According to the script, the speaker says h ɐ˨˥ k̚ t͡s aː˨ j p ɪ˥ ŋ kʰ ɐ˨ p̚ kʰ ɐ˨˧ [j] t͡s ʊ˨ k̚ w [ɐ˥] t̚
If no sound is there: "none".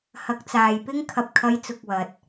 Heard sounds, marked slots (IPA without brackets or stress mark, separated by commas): j, ɐ˨